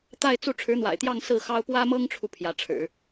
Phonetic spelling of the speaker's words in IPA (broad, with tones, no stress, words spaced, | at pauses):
t̪a˥˧ɪ̯ t͡su˥˩ ʈ͡ʂʰɻ̩˧˥n̪wa̰˨˩ɪ̯t̪jɑ˥˧ŋ sɹ̩˥˩xɑ˥ʊ̯ pwä˥mɤ˥ŋʈ͡ʂʰu˨ pʰjä˧˥ ʈ͡ʂʰɻ̩˨˩˦